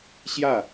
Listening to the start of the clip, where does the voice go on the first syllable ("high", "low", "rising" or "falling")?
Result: falling